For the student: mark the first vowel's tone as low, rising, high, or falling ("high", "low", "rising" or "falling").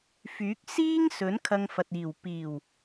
rising